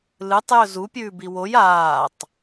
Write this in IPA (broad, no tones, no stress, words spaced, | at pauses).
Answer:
lɨtˤ jɵzu pʲʉːbiwoj aːtˤ